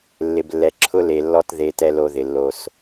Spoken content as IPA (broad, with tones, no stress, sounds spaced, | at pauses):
lː ɪ˨ b lː ɛ˨ ǁʰ ʊ˦ l e˨ lː ɔ˦ t ð e˦ t ɛ˦ l o˦ ð ɪ˨ lː o˦ s